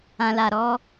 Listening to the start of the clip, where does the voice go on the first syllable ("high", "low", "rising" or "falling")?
low